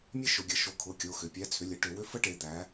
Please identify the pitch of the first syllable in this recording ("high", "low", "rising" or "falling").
high